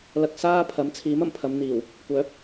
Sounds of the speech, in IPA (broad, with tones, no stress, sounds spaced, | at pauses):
l ɐ˧ k̚ s aː˥ pʰ ɐ˨˥ m t͡sʰ iː˨˥ m ɐ˨˩ m pʰ ɐ˨˧ m n̪ iː˨˩ w | kʷ œː˨˥ p̚